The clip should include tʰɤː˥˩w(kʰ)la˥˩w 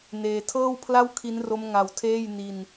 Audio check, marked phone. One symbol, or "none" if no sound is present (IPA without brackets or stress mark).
pʰ